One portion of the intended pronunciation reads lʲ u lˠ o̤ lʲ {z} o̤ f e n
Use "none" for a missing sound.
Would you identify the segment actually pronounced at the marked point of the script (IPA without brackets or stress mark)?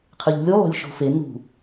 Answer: ʃ